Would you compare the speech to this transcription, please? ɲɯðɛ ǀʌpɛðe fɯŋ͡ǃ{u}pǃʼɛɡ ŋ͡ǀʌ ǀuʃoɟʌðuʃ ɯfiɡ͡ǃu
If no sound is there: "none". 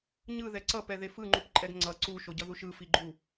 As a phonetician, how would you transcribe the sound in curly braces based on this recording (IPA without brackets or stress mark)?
u